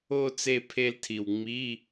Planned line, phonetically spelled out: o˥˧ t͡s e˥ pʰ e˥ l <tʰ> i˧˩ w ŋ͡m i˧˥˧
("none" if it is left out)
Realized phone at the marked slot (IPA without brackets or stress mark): tʰ